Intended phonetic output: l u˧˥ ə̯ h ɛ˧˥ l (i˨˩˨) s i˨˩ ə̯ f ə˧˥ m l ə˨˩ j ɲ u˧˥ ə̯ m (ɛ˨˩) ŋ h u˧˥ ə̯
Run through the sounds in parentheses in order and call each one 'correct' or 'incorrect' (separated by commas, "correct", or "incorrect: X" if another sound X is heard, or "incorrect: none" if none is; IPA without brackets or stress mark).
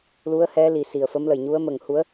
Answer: correct, incorrect: ə˨˩